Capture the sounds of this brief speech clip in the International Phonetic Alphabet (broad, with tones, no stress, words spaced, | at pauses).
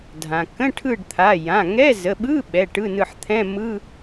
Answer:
dʱã˩ kə̃˧˥˧ʈʰɯ˦˨ɖt̪ʰa˩˧˩ jã˩˧˩ŋɛ˧˥˧ zə˩˧˩ɓɯ˧˥˧ ɓɛ˩˧˩ ʈɯ˧˥˧nɯ˦˨ħ t̪ʰɛ̃˧˥˧mɯ˧˥˧